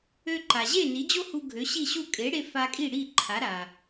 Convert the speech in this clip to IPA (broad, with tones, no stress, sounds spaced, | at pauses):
ø˧ ǃ a˩ ʑ e˥˩ n i˩˥ d͡ʑ o˥ h u˧ ɡʱ ø˩˥ ɕ i˥˩ ɕ u˥˩ kʼ e˩˥ ɽ e˧ f a˧ kʼ i˥˩ ɽ i˥˩ ǃʰ a˩˥ ɾ a˩